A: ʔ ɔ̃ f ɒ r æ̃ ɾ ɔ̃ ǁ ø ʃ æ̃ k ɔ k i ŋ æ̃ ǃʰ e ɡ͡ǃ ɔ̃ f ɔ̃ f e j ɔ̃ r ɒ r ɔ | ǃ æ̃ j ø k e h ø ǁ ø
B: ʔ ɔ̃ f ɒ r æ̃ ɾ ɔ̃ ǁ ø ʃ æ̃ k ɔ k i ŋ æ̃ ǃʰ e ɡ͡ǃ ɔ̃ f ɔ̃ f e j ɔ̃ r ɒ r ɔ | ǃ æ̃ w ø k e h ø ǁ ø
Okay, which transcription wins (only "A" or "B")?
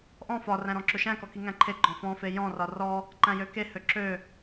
A